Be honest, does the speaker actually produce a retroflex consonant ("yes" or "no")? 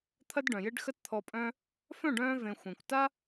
yes